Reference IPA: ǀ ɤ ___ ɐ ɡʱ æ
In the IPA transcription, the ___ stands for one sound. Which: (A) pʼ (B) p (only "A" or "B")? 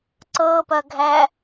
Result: B